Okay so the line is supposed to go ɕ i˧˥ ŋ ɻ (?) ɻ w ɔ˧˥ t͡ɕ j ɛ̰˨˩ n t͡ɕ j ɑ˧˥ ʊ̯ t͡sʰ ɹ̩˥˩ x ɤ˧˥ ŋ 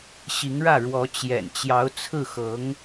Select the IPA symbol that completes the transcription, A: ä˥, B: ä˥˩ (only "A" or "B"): B